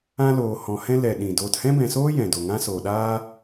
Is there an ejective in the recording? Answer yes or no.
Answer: no